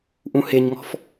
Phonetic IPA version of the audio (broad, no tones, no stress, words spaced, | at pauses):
ʔũheɲŋɔ̤f